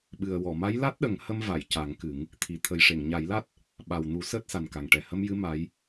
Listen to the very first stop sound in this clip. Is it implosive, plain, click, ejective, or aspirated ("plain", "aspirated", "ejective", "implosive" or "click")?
implosive